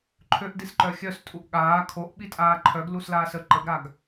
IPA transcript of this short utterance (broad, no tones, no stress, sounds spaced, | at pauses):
ǃʰ ø ʔ d i s ǃ œ xʲ œ s tʼ u ʔ ɠ aː kʰ o ʔ ɓ i tʼ aː ǃʰ œ ɡ l u s l aː s ə ǃ ə ɡ ɾ a ɡ